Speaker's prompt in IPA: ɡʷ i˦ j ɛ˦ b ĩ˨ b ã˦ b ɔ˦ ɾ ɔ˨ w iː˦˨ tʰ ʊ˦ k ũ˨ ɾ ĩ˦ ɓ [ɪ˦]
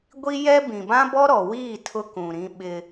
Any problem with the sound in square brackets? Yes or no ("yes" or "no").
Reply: no